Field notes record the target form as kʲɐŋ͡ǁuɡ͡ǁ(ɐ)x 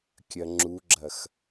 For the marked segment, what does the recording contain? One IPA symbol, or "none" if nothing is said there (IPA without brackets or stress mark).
ɐ